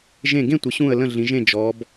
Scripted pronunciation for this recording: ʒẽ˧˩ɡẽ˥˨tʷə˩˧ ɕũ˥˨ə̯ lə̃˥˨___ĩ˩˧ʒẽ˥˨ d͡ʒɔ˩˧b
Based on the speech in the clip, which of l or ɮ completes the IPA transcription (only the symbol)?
ɮ